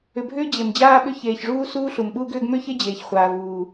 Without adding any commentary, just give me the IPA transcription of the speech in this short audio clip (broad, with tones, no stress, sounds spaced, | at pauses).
ʏ˩ bʱ ʏː˥ d͡ʑ e˩ m d͡ʑ aː˥ ɓ ʏ˥ ç eː˩ ç ʐ uː˥ s uː˥ ɬ u˩ m ɓ uː˥ ɡ ʏː˥ ɡ m ʏː˥ ç e˥ d͡ʑ eː˩ ç χʷ aː˩ v uː˩